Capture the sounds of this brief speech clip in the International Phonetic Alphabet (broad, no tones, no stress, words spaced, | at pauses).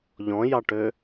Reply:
ʎɔ̃jɑʈø